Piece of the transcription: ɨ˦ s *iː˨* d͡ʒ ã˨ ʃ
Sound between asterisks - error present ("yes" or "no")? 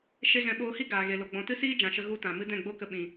yes